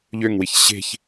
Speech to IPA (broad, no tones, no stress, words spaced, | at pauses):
ʎøŋwiç ɕe̤ç